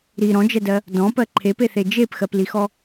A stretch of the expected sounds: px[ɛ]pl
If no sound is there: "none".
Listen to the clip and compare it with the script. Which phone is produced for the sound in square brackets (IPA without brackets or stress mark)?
ɜ